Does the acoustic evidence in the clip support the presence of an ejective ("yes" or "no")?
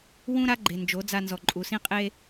yes